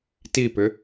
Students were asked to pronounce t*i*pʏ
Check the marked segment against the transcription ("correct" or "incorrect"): correct